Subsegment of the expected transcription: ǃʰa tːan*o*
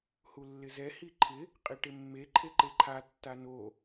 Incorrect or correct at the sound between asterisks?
correct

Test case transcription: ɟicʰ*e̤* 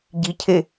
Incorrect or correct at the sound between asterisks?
incorrect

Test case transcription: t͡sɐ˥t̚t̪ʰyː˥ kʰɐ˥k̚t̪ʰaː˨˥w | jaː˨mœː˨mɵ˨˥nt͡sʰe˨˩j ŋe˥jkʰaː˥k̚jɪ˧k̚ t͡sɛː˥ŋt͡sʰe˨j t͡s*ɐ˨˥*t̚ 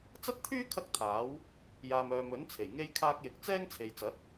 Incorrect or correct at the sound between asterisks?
correct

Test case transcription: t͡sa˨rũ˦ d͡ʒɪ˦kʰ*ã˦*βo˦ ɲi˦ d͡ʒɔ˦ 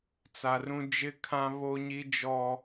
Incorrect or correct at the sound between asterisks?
correct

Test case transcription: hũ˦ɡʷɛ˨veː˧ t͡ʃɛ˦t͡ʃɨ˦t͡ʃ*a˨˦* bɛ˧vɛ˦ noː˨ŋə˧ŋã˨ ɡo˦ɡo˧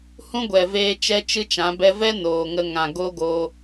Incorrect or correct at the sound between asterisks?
incorrect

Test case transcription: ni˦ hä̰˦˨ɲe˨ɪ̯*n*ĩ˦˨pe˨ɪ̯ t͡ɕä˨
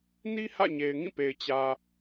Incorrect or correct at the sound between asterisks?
incorrect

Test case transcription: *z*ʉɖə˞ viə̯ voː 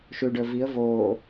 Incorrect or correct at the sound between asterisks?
incorrect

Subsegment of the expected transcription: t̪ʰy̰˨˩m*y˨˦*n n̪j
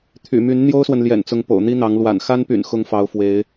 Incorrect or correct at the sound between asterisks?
correct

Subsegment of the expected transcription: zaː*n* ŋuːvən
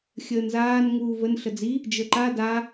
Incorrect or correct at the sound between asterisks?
correct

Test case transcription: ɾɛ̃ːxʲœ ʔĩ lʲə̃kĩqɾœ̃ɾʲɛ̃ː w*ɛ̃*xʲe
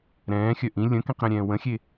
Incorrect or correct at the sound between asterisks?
incorrect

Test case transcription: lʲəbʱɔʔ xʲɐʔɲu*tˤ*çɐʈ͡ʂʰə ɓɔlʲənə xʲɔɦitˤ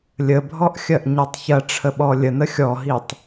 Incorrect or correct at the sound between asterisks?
correct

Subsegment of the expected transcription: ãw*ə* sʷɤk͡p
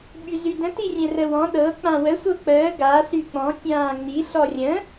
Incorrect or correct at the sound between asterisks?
correct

